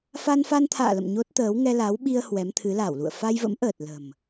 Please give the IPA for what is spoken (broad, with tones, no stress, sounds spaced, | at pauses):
f a˧ n f a˧ n t̪ʰ a̰ː˧˨ l ə̰˧˨ m ɲ o˦˥ t̚ t̪ əː˨˦ w ŋ ɛ˧ l a˨˦ w ɓ i˧ ə̯ h w ɛ˨˦ m t̪ʰ ɨ˨˦ l a˧˩ w l ṵ˧˨ ə̯ f a˧ j v ə̰˧˥ m ʔ əː˨˩ t̚ l ə̤˨˩ m